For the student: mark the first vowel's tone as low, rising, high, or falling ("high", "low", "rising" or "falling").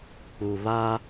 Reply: low